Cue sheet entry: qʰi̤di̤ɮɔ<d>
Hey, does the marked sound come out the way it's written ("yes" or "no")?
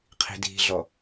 no